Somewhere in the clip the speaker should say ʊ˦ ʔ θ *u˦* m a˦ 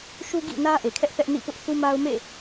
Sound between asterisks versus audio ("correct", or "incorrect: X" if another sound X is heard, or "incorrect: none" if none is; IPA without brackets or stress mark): correct